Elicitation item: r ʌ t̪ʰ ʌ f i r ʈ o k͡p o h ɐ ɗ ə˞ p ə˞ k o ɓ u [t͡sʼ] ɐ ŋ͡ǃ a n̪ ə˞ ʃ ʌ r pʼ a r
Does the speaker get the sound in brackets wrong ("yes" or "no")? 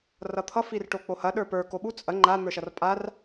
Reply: no